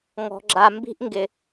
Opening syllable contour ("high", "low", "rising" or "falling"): low